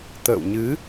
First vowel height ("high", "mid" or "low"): mid